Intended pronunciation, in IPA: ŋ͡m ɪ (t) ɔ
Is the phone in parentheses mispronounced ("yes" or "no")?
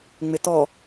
no